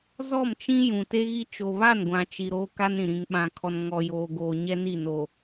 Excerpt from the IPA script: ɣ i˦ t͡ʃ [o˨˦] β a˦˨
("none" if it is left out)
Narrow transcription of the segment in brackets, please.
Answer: o˨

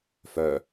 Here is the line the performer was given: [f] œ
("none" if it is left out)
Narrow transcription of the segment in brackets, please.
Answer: f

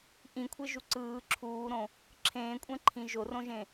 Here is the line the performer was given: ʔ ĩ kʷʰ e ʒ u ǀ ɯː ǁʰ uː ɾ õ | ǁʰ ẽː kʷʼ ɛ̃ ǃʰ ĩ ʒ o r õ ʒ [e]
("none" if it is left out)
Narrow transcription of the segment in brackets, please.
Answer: ẽ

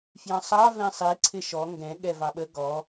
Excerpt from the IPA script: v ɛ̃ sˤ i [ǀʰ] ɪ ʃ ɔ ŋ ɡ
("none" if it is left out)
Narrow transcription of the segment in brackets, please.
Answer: ǀʰ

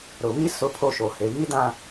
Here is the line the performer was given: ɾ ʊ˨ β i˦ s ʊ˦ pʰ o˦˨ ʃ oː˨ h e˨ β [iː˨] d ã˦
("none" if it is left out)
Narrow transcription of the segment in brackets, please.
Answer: iː˦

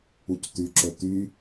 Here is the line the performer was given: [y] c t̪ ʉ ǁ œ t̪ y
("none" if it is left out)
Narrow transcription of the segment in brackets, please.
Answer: u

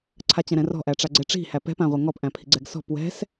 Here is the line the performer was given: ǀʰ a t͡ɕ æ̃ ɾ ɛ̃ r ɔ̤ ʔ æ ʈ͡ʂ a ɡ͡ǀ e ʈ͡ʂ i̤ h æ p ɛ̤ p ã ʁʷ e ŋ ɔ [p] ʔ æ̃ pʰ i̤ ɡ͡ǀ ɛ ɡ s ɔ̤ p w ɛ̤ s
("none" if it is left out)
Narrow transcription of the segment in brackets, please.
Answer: p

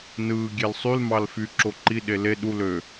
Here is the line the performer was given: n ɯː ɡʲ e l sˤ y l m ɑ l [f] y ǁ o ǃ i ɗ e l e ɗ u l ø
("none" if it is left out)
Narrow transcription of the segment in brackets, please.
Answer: f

